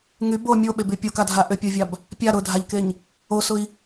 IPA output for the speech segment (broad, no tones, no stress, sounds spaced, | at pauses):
ŋ y b o mʲ o ɓ e b y pʲ o k a dʱ a ʔ ʏ pʲ o vʲ a b | pʲ a ɾ ʊ dʱ a ʎ k e ɲ | o s ʊ i̯